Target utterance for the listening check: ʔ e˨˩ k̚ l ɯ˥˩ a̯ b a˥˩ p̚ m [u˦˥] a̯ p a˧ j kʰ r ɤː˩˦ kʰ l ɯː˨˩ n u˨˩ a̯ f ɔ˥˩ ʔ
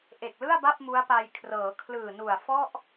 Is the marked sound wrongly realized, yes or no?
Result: no